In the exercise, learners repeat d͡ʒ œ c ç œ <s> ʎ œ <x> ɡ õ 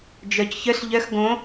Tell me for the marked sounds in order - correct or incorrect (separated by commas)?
correct, correct